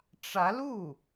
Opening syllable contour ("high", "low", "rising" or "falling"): rising